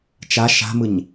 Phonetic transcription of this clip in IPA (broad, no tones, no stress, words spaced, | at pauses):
t͡ʃa ʃa̤mɯɲ